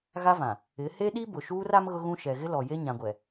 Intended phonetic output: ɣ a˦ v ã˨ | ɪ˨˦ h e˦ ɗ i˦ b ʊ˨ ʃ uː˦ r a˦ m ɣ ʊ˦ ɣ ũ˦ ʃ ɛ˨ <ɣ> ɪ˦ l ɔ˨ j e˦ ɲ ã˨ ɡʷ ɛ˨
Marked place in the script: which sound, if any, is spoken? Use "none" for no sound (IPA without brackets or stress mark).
ɣ